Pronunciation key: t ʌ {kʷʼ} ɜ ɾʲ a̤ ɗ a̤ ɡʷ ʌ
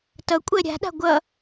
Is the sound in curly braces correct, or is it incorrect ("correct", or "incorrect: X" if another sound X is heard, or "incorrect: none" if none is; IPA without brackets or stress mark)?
correct